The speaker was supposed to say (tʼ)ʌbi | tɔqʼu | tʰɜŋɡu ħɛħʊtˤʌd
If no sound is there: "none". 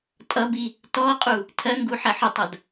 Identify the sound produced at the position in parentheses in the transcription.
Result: tʼ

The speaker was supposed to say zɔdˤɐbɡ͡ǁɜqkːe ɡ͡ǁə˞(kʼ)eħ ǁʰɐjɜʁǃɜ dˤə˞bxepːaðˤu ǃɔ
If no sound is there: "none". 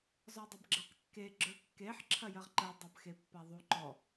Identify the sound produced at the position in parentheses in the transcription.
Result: kː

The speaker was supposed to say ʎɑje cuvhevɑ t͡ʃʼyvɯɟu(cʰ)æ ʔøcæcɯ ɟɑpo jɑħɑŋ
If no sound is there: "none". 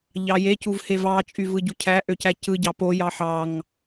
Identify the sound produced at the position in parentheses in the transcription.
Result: cʰ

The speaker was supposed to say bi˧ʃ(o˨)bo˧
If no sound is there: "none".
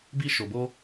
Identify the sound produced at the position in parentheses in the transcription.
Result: o˨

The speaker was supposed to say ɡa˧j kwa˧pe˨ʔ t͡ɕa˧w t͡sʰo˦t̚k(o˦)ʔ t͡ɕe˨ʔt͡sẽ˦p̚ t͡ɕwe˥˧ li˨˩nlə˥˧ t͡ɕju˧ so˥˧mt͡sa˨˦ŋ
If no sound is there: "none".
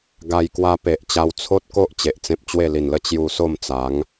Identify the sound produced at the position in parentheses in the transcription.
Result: o˦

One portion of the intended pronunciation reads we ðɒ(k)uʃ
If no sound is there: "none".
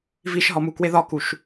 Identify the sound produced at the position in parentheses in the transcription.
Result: k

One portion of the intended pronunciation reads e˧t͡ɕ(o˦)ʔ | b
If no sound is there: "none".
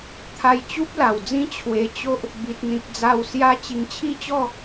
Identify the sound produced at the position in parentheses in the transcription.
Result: o˦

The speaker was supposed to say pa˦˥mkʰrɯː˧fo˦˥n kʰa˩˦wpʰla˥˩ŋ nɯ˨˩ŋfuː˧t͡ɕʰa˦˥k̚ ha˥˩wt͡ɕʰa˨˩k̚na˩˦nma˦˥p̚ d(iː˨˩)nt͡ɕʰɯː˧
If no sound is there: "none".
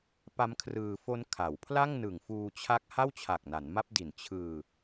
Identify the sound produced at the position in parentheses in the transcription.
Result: i˨˩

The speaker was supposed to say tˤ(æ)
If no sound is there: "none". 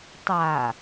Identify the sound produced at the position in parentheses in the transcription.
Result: a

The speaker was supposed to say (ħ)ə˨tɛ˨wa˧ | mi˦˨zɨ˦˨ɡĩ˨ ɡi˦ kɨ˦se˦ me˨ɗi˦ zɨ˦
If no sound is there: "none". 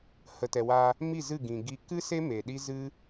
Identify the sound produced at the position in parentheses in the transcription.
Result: h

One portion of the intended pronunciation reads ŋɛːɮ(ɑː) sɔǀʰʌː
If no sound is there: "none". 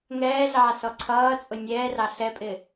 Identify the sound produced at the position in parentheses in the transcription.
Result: ɑː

